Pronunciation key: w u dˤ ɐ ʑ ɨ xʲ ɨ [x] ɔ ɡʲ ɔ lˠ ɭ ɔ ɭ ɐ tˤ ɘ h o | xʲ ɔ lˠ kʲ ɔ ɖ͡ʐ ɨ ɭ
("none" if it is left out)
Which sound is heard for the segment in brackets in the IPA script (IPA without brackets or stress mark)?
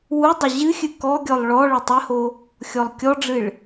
k